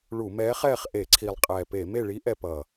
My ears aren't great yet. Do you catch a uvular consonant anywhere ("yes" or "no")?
yes